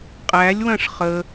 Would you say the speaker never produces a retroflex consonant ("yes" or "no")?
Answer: no